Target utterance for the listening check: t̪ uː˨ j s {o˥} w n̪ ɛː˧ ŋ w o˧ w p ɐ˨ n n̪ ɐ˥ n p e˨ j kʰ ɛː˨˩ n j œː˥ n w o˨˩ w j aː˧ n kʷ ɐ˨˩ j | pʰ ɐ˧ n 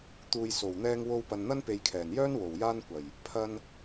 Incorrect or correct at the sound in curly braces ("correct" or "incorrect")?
incorrect